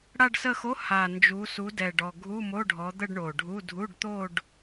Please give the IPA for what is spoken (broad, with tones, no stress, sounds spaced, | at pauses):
ɽ a˥˧ ɖ s ə˥˧ x o˧˥˧ h a˨˩ n d͡ʒ u˨˦ s u˨˦ d ɛ˨˩ ɖ ɔ˨˩ ɡʱ u˧˥˧ m o˧˥˧ ɖʱ ɔ˨˦ d̪ ə˥˧ ɖ ɳ o˨˩ ɖʱ u˧˥˧ dʱ u˧˥˧ ɖ t̪ o˥˧ ɖ